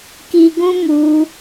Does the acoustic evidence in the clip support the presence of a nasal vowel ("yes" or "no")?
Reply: yes